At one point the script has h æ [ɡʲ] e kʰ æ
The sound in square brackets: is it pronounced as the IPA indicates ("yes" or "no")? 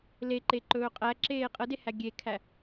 yes